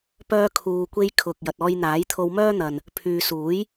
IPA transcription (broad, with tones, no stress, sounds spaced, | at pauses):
p œː˧ kʰ uː˨ kʷ e˧ j kʰ ʊ˨ k̚ j ɐ˨ t̚ ɔː˧ j n̪ aː˨˥ j t̪ʰ o˧ w m œː˥ n̪ ɐ˨ n | pʰ yː˨ s uː˨˥ j